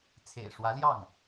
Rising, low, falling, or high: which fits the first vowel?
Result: low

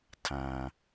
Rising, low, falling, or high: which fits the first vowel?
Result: low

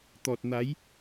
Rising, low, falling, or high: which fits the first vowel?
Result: low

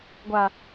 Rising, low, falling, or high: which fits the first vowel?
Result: low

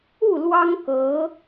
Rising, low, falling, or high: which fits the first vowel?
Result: falling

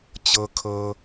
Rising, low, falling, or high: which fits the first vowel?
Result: low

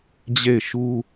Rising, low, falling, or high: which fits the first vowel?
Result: falling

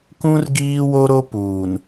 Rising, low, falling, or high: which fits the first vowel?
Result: high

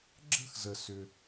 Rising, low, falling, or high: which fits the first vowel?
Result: high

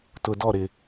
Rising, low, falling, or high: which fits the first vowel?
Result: low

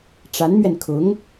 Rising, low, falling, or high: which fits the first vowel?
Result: rising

